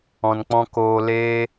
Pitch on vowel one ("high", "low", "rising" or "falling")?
low